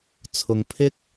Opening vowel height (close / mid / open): close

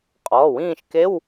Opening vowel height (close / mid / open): mid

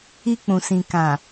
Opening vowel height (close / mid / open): close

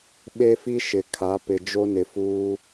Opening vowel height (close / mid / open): mid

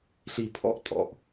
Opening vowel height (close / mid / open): close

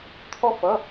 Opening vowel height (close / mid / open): mid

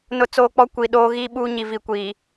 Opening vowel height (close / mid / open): close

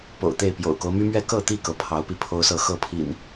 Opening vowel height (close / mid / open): mid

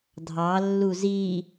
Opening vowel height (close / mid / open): open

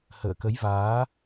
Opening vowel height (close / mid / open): mid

